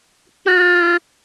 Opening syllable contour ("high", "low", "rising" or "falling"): high